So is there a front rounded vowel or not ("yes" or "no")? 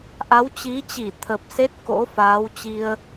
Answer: no